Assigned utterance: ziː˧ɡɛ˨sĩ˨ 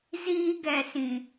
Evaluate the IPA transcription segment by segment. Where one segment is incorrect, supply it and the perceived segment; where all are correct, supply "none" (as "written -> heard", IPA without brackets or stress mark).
none